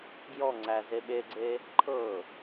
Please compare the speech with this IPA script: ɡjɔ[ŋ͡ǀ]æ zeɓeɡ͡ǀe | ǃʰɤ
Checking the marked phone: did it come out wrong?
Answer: no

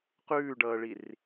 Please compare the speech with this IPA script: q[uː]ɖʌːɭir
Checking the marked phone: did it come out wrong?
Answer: yes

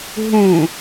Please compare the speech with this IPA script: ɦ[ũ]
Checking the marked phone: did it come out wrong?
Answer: no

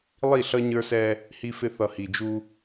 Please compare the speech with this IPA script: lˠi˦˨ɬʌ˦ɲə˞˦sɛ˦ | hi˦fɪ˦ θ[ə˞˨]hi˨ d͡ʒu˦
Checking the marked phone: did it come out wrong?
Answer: yes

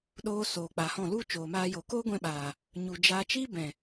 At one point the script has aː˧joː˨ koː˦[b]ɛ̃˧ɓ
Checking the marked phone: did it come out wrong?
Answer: yes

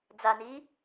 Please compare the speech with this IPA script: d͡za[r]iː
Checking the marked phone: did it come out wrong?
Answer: yes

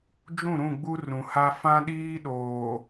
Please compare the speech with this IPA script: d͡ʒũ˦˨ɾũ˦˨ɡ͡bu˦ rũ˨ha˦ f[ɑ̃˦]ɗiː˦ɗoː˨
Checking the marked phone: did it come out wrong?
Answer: yes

